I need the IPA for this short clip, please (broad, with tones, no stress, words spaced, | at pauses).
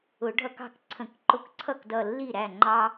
ʊ˨˩˦ɖʱʌ˦kɑ̤˥˩k ǀʰə̃˨˩˦kǃʊ˧˩kǀʰʌ˥˩kdʌ˧˩ lːi˥˩ɾæ˥˩ ŋ͡ǃɑ˦